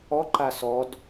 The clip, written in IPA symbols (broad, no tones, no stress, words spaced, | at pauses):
ɔǃa sɔd